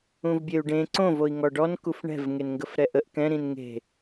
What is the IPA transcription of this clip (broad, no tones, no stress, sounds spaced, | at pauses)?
ũ v bʲ e u̯ ɖ ẽ ǀ õ v o i̯ ŋ ɔ ɖ ɔ n k u f ɳ ɛ̤ v ŋ e n ŋ ɡ ə f ɾ ɛ ʔ ə ʔ k ɛ̃ ɾ ĩ n ŋ e̤